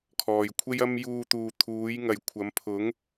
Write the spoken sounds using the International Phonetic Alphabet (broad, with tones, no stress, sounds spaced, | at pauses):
kʰ ɔː˨˩ j kʷʰ e˥ j ɐ˥ m j uː˧ t̪ uː˨ t̪ʰ uː˨˥ j ŋ ɐ˨ j kʷʰ ɐ˨˥ m pʰ ʊ˨˥ ŋ